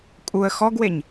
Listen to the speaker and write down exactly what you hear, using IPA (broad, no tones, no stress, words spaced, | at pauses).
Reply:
kʼuə̯ xɔɡweɲ